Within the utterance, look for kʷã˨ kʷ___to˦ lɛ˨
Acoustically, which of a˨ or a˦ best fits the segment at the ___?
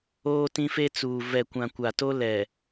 a˨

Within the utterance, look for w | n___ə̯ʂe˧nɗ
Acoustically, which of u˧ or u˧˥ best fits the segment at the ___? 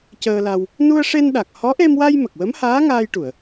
u˧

